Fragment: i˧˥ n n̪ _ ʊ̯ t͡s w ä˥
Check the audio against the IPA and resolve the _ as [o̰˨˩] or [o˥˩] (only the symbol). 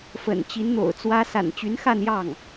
o̰˨˩